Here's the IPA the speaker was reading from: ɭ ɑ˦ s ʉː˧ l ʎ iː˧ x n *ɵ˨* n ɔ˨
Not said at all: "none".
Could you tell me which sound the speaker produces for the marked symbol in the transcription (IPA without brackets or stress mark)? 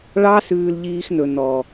ɵ˨